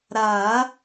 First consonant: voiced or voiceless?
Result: voiced